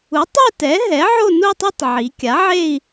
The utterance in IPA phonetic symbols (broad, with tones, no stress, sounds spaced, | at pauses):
u˩˥ tˤ e˥˧ t ɛ˩˥ ɦ ɛ˩˥ ʕ o˥˧ n u˥˧ tˤ ɛ˥˧ tˤ ʕ i˩˧ kʲ a˩˥ ʕ e˥˧ i̯